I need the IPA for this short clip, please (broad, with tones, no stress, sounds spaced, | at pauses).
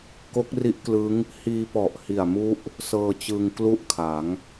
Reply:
k o˦˥ k̚ r i˦˥ ʔ k l ɯ˦˥ ŋ | h iː˧ p ɔ˨˩ ʔ h i˨˩ a̯ m u˦˥ ʔ | s ɤː˧ t͡ɕ ɯ˧ ŋ k l u˥˩ ʔ kʰ a˩˦ ŋ